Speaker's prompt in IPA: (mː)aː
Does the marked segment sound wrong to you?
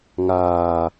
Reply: yes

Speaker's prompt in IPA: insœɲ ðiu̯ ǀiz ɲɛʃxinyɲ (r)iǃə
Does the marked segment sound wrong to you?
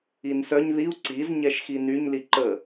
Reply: yes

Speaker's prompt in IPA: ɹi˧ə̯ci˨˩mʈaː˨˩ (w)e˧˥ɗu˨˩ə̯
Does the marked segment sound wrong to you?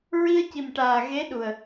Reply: yes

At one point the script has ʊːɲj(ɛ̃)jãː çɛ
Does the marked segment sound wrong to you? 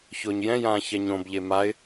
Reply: no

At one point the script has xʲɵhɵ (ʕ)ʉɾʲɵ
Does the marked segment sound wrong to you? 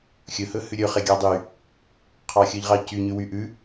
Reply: yes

